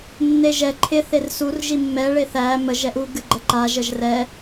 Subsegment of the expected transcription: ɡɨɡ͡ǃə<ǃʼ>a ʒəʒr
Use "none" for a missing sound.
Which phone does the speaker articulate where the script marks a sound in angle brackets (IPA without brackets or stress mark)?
ǃ